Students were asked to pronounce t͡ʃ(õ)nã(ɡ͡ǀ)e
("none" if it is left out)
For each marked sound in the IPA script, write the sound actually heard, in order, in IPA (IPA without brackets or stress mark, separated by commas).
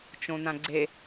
õ, ɡ͡ǀ